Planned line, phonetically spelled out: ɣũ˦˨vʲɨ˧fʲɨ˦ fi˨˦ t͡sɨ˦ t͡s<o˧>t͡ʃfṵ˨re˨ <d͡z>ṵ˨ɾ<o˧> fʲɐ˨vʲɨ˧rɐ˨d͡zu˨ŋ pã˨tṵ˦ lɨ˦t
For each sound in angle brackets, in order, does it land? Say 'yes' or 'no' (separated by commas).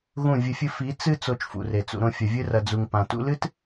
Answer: yes, no, no